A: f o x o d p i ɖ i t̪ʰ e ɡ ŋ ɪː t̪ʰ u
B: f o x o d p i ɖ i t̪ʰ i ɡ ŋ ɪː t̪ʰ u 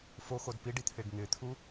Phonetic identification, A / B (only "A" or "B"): A